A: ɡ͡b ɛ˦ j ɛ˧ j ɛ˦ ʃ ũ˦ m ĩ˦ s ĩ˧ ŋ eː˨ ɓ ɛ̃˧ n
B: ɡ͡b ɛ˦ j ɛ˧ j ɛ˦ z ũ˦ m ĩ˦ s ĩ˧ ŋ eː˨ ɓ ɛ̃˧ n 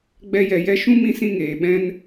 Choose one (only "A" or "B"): A